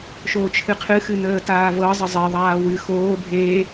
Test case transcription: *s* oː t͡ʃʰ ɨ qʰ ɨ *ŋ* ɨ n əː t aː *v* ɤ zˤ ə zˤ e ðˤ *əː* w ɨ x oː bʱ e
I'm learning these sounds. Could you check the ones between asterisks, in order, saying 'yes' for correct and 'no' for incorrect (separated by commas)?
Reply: no, no, yes, no